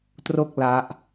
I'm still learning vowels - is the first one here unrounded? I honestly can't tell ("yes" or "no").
no